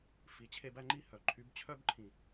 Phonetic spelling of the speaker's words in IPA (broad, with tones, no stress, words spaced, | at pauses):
fi˨ t͡ɕʰe˦bæ˦ŋ͡ǃi˦hœ˨ ǃʰy˨˦bt͡ɕʰœ˦bǃʰĩ˨